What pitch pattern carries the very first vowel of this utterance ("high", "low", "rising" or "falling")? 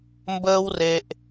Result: high